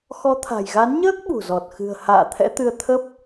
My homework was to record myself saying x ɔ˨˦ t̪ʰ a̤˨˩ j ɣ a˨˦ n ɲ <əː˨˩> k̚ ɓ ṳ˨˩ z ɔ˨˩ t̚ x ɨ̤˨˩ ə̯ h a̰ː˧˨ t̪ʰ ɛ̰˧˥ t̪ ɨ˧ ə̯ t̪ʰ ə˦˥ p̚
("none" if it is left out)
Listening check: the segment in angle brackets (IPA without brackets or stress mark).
əː˦˥